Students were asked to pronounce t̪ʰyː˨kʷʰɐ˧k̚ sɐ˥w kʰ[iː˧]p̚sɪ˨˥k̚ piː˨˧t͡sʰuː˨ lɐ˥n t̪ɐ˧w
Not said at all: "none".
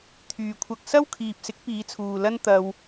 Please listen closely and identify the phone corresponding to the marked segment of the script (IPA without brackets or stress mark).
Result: iː˨